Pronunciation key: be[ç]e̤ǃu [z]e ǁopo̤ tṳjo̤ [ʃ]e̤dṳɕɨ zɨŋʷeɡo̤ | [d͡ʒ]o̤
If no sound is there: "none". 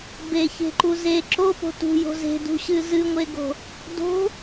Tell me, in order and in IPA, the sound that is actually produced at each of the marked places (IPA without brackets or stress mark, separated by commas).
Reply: ç, z, z, d